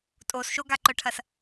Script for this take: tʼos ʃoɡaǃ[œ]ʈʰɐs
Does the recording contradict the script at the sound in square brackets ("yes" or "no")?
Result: no